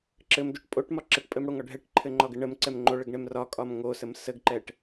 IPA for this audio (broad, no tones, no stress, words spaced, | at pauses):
ǁɘmdoʈ pʼoʈmɒ ǁəʈpʼɘmɽoŋɒ ɖʱɛʈǃʰɘŋ͡ǃɒɡɘ ɳəmǀɛm ŋ͡ǃoɭəɡɳɛm rɒkʼɒm ŋosəm səɡǃɛʈ